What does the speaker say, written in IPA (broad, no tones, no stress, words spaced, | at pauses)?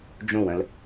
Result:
d͡ʒõwə̃l